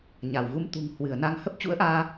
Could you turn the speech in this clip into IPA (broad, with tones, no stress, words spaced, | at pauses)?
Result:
ɲa˧˩w ɣu˧mt̪ṳ˨˩ŋ hwɨ˧˩ə̯na˧ŋ hə˦˥p̚t͡ɕṵ˧˥ə̯ʔaː˧